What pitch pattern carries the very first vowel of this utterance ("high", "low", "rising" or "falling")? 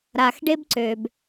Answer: low